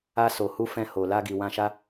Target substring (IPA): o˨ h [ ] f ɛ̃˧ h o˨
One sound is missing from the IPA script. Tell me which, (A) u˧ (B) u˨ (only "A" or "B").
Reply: A